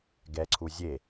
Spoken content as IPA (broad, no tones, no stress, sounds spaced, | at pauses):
ɡ ɛ ǀʰ u zʲ e